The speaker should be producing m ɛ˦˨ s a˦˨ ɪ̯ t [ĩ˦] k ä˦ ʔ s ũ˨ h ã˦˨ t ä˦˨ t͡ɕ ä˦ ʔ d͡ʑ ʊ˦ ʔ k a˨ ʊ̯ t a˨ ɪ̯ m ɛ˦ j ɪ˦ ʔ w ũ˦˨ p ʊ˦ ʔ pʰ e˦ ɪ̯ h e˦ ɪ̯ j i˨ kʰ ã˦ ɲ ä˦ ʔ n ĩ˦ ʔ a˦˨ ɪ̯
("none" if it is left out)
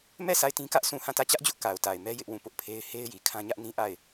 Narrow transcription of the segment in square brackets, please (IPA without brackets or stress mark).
ĩ˦